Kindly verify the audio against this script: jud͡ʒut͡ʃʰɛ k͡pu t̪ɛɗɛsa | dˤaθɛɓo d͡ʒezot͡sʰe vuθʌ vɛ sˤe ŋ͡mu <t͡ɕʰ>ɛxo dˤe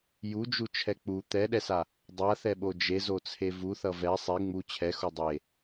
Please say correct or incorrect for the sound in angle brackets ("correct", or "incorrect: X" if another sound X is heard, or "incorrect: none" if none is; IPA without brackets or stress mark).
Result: correct